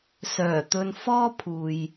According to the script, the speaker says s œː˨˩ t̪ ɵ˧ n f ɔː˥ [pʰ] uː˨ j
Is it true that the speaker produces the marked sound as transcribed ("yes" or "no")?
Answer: yes